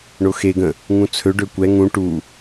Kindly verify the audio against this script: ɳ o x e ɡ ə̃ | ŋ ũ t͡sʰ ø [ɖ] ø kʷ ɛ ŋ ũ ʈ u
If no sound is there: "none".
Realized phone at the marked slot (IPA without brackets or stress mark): ɖ